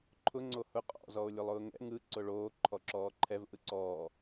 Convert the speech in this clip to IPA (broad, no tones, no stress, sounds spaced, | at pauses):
ǃʰ ʊ ŋ͡ǀ o h ʊ qʼ ɔ̰ z ɔ o̯ lʲ ʊ lˠ ʊː ŋ ɛ̰ ŋ ɯ ǀ ʊ ɭ oː ǃʰ ɔ ǁ ɔː ǃʰ ɛ v ʔ ɯ ǀ ɔː